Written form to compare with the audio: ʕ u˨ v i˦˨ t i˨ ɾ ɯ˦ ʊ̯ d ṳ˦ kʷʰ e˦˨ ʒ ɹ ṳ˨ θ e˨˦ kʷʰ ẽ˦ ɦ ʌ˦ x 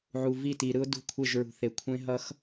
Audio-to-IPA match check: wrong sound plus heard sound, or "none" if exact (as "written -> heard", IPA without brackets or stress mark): none